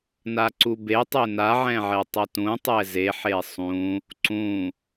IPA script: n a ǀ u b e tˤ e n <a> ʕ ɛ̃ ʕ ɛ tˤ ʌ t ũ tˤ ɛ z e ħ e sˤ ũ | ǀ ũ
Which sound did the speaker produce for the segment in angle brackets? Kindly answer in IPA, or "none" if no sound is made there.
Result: a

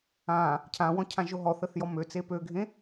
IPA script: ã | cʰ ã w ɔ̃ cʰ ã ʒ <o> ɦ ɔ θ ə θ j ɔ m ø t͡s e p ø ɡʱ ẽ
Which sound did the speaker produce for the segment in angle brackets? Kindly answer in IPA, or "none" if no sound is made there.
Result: o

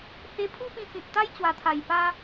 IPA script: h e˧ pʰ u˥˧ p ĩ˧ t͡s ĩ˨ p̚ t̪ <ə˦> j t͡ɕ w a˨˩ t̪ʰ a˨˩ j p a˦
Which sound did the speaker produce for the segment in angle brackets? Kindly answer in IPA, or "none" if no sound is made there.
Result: a˦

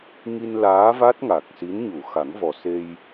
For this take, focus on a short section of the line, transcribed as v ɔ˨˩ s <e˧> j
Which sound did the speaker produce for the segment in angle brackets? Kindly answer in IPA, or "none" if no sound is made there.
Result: e˧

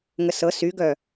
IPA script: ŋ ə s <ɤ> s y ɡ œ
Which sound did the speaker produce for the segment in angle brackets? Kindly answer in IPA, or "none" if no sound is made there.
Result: ɤ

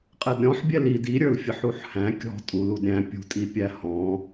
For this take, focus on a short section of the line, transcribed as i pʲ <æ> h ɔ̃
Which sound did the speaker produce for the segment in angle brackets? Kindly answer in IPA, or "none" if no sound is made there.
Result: æ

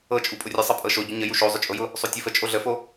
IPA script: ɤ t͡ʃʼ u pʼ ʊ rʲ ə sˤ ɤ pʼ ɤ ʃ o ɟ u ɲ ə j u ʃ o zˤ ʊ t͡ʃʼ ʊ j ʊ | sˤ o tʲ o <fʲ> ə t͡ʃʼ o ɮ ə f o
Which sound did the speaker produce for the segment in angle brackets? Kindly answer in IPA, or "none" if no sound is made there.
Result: f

